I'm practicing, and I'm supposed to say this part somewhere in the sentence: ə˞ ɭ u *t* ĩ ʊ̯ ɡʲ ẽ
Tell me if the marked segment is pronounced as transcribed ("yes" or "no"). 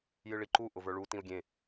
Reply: yes